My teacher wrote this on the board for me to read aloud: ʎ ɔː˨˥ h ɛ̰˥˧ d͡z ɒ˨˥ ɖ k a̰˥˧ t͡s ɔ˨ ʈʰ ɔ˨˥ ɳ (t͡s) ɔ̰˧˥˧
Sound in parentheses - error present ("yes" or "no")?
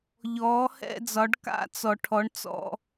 no